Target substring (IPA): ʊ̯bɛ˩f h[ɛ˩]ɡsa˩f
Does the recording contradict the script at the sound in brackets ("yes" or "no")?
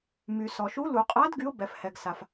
no